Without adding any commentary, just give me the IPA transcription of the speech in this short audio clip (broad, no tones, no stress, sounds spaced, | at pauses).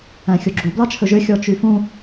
æ̃ xʲ o ɡ͡ǁ u b l ɑ t͡ʃʰ ɵ ʒ ø xʲ ɔ t͡ʃ y f ũ